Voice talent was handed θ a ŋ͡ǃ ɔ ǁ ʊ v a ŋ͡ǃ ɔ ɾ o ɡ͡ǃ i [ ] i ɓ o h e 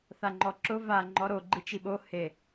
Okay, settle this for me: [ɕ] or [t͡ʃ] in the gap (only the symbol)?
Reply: t͡ʃ